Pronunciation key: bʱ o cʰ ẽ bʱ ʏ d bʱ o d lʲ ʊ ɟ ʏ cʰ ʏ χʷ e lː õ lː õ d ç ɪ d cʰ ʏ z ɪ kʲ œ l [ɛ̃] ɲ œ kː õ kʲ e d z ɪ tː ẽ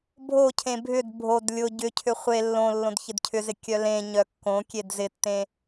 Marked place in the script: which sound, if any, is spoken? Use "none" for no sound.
ẽ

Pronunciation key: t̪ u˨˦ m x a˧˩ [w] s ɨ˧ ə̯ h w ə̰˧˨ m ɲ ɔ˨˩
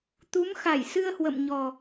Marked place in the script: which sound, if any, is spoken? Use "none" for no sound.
j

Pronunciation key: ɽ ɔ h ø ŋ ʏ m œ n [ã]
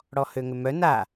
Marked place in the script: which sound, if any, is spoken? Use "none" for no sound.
a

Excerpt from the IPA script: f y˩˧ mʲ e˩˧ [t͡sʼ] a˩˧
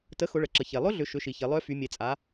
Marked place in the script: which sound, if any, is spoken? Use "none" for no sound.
t͡sʼ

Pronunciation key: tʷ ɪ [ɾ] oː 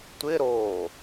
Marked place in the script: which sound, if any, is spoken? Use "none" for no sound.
ɾ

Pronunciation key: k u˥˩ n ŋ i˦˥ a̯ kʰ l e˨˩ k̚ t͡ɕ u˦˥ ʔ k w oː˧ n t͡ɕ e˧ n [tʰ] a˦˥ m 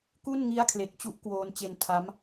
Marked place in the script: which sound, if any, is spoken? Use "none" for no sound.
tʰ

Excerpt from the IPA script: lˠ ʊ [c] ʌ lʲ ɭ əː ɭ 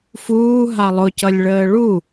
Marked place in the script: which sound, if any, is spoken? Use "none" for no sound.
c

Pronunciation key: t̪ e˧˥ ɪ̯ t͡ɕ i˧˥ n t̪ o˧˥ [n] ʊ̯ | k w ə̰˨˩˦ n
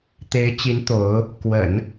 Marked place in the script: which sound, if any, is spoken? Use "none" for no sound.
none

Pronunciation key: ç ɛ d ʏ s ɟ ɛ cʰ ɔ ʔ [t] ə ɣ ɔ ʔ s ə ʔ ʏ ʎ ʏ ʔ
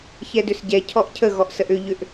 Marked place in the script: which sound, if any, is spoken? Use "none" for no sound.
cʰ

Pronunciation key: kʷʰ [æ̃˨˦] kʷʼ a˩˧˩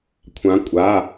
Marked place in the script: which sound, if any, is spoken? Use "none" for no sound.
ã˨˦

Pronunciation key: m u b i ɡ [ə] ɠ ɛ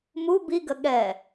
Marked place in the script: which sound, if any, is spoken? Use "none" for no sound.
ə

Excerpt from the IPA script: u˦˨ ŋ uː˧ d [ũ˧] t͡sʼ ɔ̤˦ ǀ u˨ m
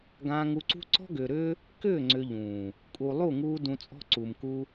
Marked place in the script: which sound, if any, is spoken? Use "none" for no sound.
ũ˧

